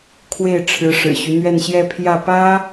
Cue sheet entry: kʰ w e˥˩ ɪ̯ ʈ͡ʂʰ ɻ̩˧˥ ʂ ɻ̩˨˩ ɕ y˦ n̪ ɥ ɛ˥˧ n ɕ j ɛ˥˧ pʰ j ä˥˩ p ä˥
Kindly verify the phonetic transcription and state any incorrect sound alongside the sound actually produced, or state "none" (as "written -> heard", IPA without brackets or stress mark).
none